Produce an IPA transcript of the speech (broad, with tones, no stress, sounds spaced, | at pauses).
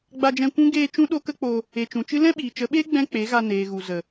ɡ͡b a˧ d͡ʒ ɛ̃˧ kʷ ũ˦ ɡ eː˧ t͡ʃ ũ˦ ɗ o˦ k ə˦ k͡p o˧ | e˨ t͡ʃ ũ˨ t͡ʃ ɨ˦ l ɛ̃˦ ɓ iː˨ t͡ʃ ə˨˦ ɓ eː˦ ɡ͡b ɛ̃˦ k͡p e˨˦ ɣ a˧ n eː˨ ɣ u˨ z ə˨